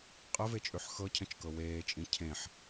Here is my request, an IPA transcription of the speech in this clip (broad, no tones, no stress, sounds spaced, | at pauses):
qʼ ə v e t͡ʃʼ ʉ ħ x ɤ cʰ ə̃ t͡ʃ k ɤ w eː t͡ʃʼ ĩ cʰ ẽ ħ